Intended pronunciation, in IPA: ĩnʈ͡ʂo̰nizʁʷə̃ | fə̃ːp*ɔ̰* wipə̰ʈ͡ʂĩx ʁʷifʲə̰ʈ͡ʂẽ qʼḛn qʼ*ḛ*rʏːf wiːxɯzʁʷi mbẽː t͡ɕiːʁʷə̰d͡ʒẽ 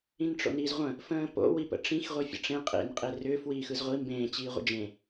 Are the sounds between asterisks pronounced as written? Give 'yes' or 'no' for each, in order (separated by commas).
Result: no, no